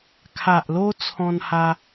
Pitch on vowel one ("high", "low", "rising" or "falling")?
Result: low